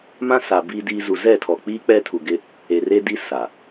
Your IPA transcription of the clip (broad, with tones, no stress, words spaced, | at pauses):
mã˦sa˨ biː˦diː˦ zu˨zɛ˦˨tʰɔ˨k͡piː˦ k͡pɛ˦tʰu˨ɡɪ˦ | e˨re˦di˦ sa˨